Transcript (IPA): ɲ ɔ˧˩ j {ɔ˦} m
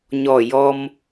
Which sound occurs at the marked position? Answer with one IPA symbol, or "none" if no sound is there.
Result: ɔ˦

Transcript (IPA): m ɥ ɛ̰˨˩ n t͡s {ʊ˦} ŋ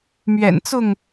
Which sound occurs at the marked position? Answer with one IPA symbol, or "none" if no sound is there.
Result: ʊ˥˨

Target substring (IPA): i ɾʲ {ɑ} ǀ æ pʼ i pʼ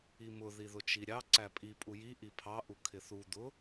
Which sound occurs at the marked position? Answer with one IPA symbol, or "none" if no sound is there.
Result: ɑ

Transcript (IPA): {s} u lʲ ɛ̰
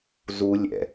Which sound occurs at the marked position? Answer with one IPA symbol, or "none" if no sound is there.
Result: z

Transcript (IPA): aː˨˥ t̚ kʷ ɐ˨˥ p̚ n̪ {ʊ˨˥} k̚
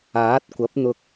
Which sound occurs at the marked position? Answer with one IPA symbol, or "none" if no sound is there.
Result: ʊ˧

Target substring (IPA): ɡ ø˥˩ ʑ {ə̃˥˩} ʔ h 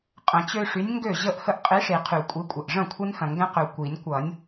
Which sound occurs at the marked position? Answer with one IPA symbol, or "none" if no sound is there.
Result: ə˥˩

